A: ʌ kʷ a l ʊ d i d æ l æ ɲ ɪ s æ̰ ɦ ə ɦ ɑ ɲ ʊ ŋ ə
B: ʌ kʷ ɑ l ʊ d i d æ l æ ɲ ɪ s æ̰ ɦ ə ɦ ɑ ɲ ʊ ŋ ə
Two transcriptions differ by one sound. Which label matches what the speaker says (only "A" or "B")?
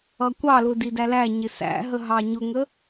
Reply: B